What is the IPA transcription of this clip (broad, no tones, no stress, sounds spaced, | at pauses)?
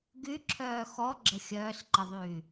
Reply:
ɡ y ǁʰ œː x ɔ ɡ͡ǁ ə xʲ œː s ǃ ə ðˤ yː